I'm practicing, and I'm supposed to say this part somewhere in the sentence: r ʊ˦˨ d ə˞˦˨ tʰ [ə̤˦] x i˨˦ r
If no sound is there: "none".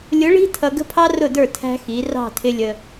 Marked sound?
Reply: æ̤˦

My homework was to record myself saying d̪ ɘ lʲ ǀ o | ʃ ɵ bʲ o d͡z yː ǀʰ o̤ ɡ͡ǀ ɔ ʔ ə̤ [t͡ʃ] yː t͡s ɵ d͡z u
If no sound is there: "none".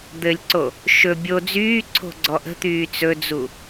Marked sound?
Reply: t̪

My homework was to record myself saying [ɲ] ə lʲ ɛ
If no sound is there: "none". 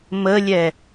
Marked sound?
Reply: m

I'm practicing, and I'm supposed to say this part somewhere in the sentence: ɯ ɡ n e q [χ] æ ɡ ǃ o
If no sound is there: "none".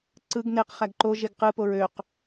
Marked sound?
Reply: χ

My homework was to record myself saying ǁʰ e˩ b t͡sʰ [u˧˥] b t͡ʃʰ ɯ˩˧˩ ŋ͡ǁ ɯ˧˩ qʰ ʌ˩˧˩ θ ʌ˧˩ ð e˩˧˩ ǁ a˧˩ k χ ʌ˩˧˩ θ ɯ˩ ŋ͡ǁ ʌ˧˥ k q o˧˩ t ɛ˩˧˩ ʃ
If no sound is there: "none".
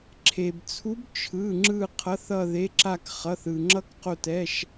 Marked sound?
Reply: u˧˥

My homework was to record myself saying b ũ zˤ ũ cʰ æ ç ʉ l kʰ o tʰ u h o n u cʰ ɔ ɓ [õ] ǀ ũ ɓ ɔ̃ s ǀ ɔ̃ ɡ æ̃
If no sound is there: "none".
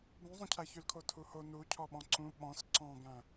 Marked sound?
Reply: ɔ̃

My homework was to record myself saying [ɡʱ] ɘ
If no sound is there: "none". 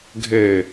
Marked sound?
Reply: ɡʱ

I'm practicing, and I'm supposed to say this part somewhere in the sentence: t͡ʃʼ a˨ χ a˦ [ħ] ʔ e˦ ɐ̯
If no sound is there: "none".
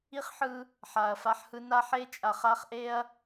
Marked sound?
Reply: χ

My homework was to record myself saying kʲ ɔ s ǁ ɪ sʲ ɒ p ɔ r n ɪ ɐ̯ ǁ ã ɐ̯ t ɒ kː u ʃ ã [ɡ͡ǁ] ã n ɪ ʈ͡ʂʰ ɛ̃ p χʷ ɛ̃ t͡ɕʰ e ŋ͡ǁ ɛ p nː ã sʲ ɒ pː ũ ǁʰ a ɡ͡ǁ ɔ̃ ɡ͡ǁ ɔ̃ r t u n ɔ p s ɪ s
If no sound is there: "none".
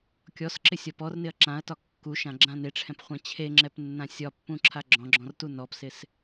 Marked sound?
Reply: ɡ͡ǁ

